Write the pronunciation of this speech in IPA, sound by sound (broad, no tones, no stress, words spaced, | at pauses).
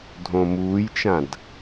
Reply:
dʱõmuːjt͡ʃãd